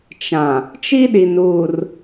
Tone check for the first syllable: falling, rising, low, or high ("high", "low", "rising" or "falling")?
low